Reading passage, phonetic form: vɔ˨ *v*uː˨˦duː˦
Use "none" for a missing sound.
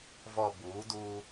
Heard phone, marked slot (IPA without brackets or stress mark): b